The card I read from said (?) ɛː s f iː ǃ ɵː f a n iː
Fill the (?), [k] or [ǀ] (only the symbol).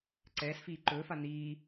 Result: ǀ